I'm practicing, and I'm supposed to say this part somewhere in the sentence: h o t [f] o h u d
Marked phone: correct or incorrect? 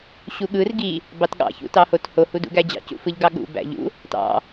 incorrect